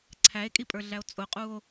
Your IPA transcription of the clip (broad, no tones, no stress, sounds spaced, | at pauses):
ǀʰ æ e̯ kʼ i pʼ ə˞ ɮ æ o̯ t͡sʼ ʊ qʼ u o̯